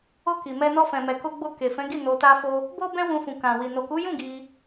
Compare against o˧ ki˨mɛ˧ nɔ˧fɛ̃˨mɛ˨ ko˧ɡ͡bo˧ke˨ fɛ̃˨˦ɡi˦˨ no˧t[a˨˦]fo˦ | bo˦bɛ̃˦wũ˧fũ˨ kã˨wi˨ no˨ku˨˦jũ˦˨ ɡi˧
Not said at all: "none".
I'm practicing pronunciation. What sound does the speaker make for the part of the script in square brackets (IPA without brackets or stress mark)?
a˦